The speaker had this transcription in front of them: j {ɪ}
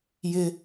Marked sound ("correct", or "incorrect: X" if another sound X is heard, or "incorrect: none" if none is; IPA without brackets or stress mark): correct